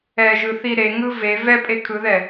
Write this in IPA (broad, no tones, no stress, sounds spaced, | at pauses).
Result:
ɛ ʒ ɯ θ i ɾ e ŋ ɯ v e v ɛ pʼ e kʰ ɯ ð ɛ